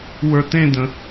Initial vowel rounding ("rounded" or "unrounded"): unrounded